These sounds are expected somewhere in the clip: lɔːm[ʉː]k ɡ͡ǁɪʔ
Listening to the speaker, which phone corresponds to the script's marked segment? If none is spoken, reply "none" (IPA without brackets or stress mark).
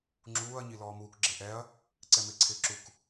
uː